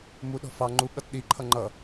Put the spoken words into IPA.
m u ɗ ɔ̤ f ɑ ŋ͡ǃ u ɠ ʌ t ɗ i ǃʰ ʌ ŋ͡ǃ ʌ

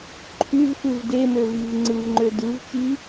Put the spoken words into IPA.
ǃʰ y v f ɯ v d e m ø v i v ŋ͡ǀ ɯ v ŋ͡ǃ ø d ɯ v t͡ʃ i

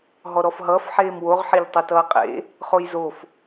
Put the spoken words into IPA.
ɦ ɔ ɾ ɔ f ɦ ʌː f ħ eː m w o ʁ ħ e ʎ tˤ ʌ t ʌː qʼ ḛ | χ o j z o f

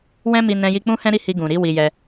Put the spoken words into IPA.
w ɛ̃˦ m i˧ n ɛ̃˧ j i˧ k͡p ũ˦ h ɛ̃˦ ɾ i˦˨ h i˧ ɡ ũ˨ ɾ i˨˦ w i˧ j ɛ˧

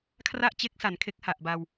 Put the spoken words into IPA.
kʰ r a˥˩ ʔ t͡ɕ e˦˥ k̚ s a˩˦ n kʰ e˦˥ k̚ h a˨˩ ʔ b a˧ w

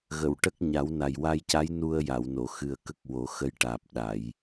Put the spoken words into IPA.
ɣ ə˨˩˨ w ʈ ə˦˥ k̚ ɲ a˨˩˦ w n a˨˩ j w a˧ j c a˧˥ j n u˧ ə̯ j a˨˩˨ w n o˨˩˨ x ɨ˨˩ ə̯ k ə˦˥ k̚ w o˨˩˦ x ə˧˥ j ʈ aː˨˩ p̚ ɗ a˨˩˨ j

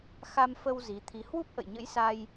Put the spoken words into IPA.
x a˧ m f ə˧ w z i˨˦ t̪ʰ i˧ h w u˦˥ p̚ ʔ ə̰˧˨ j ɲ ə̰˧˥ j s a˧ j

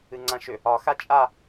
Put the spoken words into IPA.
ɨ ŋ͡ǀ ã ʃ ʏ | ɒ x a t͡ʃʼ a

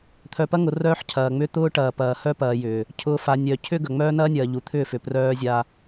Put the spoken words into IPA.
t̪ʰ œ˨ p ɐ˦ ŋ ʊ˨ r œː˦ ħ cʰ ɐː˨ ŋ͡m ʏ˦ t̪ ʊː˦ ʈ ɐː˨ p ɐː˨ h œ˦ p ɐː˨ j ʏː˨ | cʰ ʊː˨ f a˨ nʲ œ˨ cʰ ʏ˦ ɡ ɐ˨ ŋ͡m œː˦ n ɐː˦ nʲ ɐː˨ ʎ u˨ t̪ʰ ʏː˦˨ f ʏ˨ p r œː˦ zʲ a˦

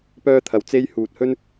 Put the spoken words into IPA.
p œː˥ t̪ʰ ɐ˨˥ w t͡s e˥ j h uː˨ t̚ h ɵ˥ n

